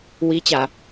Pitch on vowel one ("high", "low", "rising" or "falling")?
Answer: rising